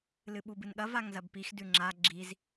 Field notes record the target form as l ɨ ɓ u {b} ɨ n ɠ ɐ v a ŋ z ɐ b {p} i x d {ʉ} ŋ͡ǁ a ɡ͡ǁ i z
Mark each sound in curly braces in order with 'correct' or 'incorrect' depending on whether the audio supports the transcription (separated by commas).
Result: correct, correct, correct